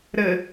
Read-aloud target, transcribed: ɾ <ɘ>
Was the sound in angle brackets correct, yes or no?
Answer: yes